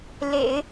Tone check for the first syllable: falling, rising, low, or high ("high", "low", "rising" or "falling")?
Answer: low